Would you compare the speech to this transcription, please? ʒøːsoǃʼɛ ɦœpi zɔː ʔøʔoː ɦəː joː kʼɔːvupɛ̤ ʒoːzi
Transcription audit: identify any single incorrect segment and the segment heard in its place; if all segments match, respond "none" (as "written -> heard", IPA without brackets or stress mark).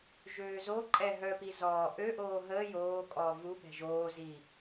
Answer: s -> z